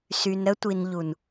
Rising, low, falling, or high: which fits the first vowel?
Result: low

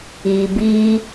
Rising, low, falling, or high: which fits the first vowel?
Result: low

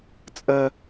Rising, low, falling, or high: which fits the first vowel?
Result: high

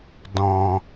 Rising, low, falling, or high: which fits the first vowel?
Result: low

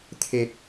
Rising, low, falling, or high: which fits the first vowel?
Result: low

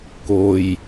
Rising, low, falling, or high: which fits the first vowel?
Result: low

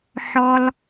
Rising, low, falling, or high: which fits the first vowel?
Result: high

